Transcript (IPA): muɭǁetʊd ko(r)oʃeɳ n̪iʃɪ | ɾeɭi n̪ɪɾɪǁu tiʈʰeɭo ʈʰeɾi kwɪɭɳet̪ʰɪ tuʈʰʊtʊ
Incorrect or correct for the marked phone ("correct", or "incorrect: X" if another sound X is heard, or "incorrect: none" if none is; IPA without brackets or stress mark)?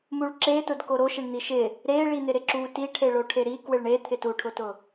incorrect: ɾ